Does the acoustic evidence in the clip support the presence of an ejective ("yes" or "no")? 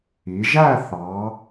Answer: no